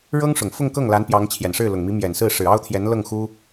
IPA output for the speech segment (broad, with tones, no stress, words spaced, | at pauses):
ɻɤ˥ŋ ʂʊ˨˩ŋfʊ˥˧ŋkɤ˥˩ŋ la˧˥n pjɑ˧˥ŋ t͡ɕʰjɛ˨˩nʂɻ̩˥˩lʊ˨˩ŋ mi˧˥mjɛ˨˩nsɹ̩˥˩ ʂɻ̩˨˩ɑ˥ʊ̯t̪ʰjɛ˧˥n lɤ˥˩ŋxu˥